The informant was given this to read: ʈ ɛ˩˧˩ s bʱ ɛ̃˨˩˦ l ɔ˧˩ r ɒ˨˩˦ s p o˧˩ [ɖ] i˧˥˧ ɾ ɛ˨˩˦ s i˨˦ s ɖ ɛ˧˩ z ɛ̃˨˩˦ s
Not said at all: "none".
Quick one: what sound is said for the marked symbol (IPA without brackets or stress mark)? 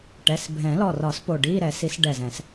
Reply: ɖ